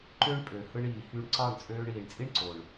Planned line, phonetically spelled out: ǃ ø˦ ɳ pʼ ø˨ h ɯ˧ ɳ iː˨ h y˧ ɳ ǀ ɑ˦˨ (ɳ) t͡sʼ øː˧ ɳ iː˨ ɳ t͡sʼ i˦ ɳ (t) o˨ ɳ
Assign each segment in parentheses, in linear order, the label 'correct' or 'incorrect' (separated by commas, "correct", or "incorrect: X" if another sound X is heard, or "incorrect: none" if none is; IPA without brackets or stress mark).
correct, incorrect: ǀ